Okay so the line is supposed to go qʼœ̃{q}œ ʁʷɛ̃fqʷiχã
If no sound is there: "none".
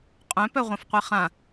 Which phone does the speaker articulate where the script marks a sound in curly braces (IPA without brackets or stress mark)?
p